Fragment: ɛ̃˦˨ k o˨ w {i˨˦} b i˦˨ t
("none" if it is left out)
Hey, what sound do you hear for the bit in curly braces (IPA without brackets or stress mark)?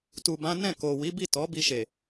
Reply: i˨˦